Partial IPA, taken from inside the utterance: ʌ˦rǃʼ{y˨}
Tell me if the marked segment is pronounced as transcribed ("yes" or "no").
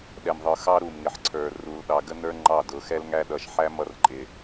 no